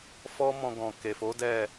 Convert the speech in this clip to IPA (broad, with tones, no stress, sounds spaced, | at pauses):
f ɔ˦ m ɔ̃˧ ɡ ɔ̃˨ k e˨ f o˨˦ d ɛ˦˨